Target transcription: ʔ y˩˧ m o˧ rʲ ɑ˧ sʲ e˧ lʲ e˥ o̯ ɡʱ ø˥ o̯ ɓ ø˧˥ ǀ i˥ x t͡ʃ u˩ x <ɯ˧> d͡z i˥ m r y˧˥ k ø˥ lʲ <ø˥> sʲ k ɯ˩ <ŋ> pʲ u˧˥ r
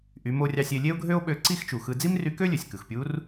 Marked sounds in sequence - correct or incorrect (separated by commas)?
correct, incorrect, incorrect